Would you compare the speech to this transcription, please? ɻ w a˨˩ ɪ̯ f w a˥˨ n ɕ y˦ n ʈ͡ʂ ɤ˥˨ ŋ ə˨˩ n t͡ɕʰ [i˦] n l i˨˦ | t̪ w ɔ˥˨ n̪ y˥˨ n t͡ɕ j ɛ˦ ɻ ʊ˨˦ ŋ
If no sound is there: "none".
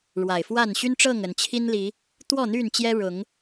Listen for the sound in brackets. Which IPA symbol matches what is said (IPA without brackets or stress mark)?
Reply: i˦